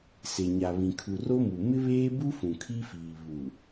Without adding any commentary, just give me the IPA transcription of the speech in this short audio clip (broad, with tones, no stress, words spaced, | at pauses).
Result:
se˨ɲa˨βĩ˨ kʰu˨ro˦mu˨ mɪ˦βeː˦bu˦ fũ˨kʰi˦fiː˨ βu˨